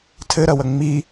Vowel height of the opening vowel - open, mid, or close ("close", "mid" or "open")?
mid